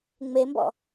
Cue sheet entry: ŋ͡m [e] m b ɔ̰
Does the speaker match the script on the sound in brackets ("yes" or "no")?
yes